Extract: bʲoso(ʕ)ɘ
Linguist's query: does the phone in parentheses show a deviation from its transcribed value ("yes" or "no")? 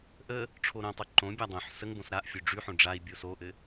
yes